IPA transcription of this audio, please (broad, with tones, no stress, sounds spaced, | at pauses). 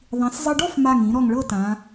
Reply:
ðˤ ĩ˩˧ s zˤ ɤ˧ ɖ ɔ˥˧ f m a˧˩ ŋ ĩ˩˧ ɾ ɔ˧˩ ŋ ɭ ɤ˥˧ t ã˩˧